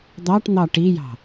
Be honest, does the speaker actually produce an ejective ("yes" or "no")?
no